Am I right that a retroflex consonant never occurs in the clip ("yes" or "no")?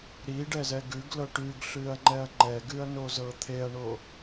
no